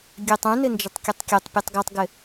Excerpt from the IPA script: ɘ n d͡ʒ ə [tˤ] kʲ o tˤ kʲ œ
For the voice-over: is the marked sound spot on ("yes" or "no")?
yes